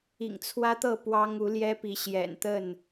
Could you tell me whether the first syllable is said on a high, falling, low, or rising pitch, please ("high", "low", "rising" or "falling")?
low